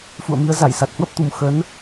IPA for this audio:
fṵ˧˨ə̯mi˨˦ə̯ za˧˩jsa˨˩t̚hwə˦˥p̚t̪u˨˩m xə˨˦n

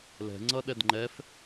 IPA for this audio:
lɛ̤ŋ͡ǀʌ ɗɛdŋ͡ǃɛf

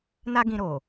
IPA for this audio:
na˦ɡĩ˧ɾo˨

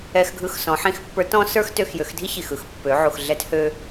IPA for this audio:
ɛ˧xɡʱɯ˧x sɔ̃˩˧ ħĩ˧xpːə˞˧˥tɔ̃˥ sə˞˥xtø˧xjø˩˧xdʱi˥ çi˩xɯ˧˥xpːø˩˧ ʕu˩xɮɛ˧˥thø˧

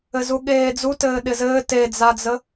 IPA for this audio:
ɘzuɠeːd͡zu tɘːɗɪzɘː ted͡zad͡zə

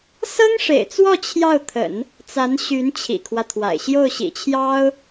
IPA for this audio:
sɤ˥ŋʂḛ˨˩ɪ̯t͡swɔ˥˧ t͡ɕʰjɑ˥˩ʊ̯t̪ʰə̰˨˩˦n | t͡sa˧˥nɕy˧˥n t͡ɕʰḭ˨˩kʰwä˦t̪ʰwa̰˨˩ɪ̯ ɕjo˥˩ʊ̯ɕḭ˨˩t͡ɕʰjɑ˥ʊ̯

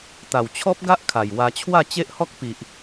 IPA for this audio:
t̪a˨˩wt͡ɕʰɔ˦p̚ɡa˦ʔ kʰa˨˩jwa˧ t͡ɕʰwa˥˧t͡ɕe˦ʔhɔ˦k̚ pi˨ʔ

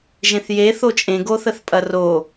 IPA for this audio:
ʒẽθje θot͡ʃʼẽ ɡoθəθpʼɐro

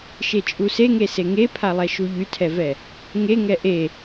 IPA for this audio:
ʃet͡ʃʼuseŋe seŋepʰalˠɛ ʃuʎytʰɛvɛ | ŋeŋɛ ʔe

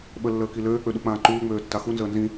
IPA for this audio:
ɓəlːəːki løːk͡pøɗuk͡pãː ǃuːŋ͡møːtːa xunzəː nzĩ

